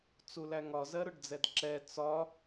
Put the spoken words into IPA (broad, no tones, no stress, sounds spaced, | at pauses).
t͡s u l æ ŋ ɒ z ɜ ɾ ʊ ɖ d͡z ɛ d ǁ ɛ t͡s ɒ